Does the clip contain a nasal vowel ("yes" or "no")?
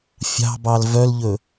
no